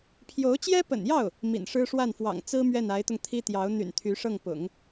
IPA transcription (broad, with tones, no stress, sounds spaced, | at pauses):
pʰ j o˧˥ ʊ̯ t͡ɕ j ɛ˥ p ə̰˨˩ n j ɑ˥˩ ʊ̯ | m ḭ˨˩ n ʂ ɻ̩˥ ʂ w a˥˩ n f w ɑ̰˨˩ ŋ t͡s ɹ̩˥ m ɥ ɛ˥˩ n a˧˥ ɪ̯ t̪ ʊ˧ ŋ t̪ʰ i˥ t̪ j ɑ˧˥ ʊ̯ n̪ y̰˨˩ n t̪ʰ y˧˥ ʂ ɤ˥˩ ŋ p ʊ̰˨˩˦ ŋ